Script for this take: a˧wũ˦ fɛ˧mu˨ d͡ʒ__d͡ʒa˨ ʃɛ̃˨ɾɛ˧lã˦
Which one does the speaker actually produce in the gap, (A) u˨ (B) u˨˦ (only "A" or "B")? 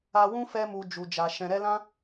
A